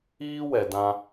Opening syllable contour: high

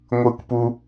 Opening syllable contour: high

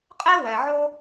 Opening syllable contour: high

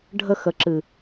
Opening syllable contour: high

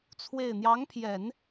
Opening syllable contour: falling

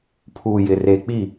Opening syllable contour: low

